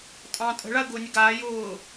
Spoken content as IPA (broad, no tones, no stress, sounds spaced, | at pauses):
tʼ ɑ̃ tʼ ə̤ ɭ a ə̯ ɡ ʊː nʲ ə ɡ aː j ʊː